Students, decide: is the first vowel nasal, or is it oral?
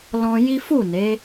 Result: nasal